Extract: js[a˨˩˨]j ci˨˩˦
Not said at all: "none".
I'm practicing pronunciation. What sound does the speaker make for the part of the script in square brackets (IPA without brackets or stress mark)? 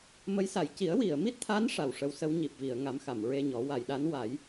a˨˩˨